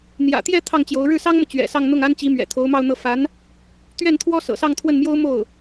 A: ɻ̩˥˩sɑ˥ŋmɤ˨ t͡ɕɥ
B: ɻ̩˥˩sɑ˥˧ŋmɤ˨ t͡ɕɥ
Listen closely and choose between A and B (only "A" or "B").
A